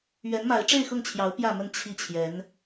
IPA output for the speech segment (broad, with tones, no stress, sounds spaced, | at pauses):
ɥ ɛ˧˥ n m a˧˥ ɪ̯ ʈ͡ʂ e˥˧ ɪ̯ x ʊ˥˩ ŋ t͡ɕʰ j ɑ˧˥ ʊ̯ p j ä˥˧ m ə˥˧ n t͡ɕʰ i˥˩ t͡ɕʰ j ɛ˧˥ n